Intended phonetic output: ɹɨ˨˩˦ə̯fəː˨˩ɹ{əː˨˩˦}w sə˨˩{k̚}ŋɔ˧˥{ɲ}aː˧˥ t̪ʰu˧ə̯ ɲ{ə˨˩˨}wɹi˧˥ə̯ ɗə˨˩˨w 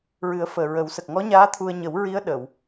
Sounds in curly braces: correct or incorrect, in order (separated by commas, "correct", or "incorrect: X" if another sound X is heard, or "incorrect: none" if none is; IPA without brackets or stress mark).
incorrect: ə˨˩˦, correct, correct, incorrect: ə˨˩˦